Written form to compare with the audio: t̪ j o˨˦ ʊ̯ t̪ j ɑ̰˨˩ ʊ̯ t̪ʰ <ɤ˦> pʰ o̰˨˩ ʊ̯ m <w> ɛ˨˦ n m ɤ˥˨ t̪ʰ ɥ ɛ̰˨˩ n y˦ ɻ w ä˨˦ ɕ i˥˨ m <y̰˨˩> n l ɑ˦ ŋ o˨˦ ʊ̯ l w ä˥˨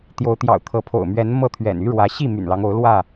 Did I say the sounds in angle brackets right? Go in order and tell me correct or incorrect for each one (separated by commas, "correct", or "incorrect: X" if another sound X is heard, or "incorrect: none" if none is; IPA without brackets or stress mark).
incorrect: ɤ˨˦, incorrect: ɥ, correct